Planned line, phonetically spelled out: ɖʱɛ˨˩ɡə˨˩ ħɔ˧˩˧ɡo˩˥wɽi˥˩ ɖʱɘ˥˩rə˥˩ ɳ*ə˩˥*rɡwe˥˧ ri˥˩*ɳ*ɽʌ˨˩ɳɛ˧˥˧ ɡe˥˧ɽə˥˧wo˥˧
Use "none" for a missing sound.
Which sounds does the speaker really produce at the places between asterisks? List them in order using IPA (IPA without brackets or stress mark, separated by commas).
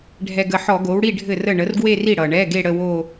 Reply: ə˩˥, none